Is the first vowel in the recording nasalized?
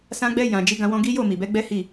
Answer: yes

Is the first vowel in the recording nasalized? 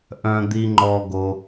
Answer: yes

